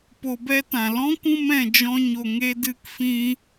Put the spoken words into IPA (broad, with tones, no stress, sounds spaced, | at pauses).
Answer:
p o˧ b ɛ˦ t ã˨ l ɔ̃˦ kʷ ũ˧ m ɛ̃˨ d͡ʒ ɔ̃˧ ɲ o˨ ŋ e˧ d ɨ˧ k f ĩ˧